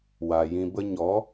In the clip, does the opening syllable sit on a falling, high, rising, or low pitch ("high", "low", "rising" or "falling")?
low